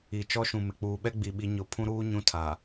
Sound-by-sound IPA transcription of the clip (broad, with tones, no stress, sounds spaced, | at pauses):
i˨ t͡ʃ ɔ˦ ʃ ũ˨ m ɪ˨ k͡p uː˨ ɓ ɛ˦ ɡ͡b i˨ ɓ i˨˦ ɲ ʊ˨ pʰ ũ˦ ɾ uː˦ ɲ ũ˦ tʰ a˨